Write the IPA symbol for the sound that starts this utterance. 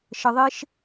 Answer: ʃ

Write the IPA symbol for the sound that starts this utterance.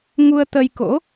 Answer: ŋ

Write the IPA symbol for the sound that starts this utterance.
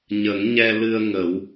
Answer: ɲ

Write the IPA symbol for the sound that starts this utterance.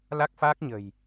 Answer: l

